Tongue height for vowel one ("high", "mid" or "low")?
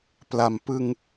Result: low